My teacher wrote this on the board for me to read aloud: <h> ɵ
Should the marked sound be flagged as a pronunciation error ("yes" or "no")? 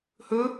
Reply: no